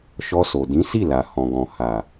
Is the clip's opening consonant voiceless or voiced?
voiceless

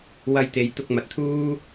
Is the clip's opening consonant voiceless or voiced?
voiced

